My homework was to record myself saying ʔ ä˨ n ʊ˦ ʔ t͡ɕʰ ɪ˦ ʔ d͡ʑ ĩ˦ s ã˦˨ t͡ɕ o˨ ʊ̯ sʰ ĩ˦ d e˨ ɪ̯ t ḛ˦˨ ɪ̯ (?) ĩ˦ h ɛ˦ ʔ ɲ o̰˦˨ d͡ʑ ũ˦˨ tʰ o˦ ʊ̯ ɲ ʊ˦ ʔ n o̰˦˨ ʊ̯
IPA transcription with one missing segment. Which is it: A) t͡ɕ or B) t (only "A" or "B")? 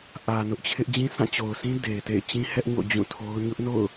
A